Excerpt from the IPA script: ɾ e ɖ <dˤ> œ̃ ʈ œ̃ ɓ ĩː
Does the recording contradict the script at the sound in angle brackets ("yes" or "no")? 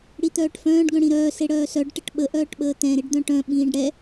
yes